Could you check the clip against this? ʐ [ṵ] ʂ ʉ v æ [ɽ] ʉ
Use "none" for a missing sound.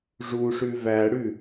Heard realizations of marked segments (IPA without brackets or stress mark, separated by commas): u, ɽ